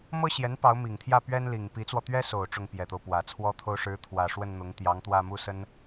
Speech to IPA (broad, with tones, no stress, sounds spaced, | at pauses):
m ɤ˥ ɕ j ɛ˧˥ n p ɑ˧˥ ʊ̯ m i˨˩ ŋ t̪ʰ j ä˥˩ p ɥ ɛ˥ n l i˨˩ ŋ p i˧˥ t͡s w ɔ˧ t̪ ɥ ɛ˥ s o˨˩ ʊ̯ ʈ͡ʂ ʊ˥˩ ŋ p j ɛ˨˩ t̪ o˦ ʊ̯ p w ä˨˩ t͡sʰ w ɔ˥ t̪ʰ o˥ ʊ̯ ʂ ɻ̩˧˥ t̪ʰ w ä˨˩ ʂ w ə˥˩ n n̪ ʊ˧˥ ŋ t̪ j ɑ˧˥ ŋ t̪ w ä˥˧ m u˥˩ s ə˥ n